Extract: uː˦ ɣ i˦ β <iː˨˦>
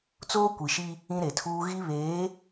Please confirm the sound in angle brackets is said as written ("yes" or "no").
no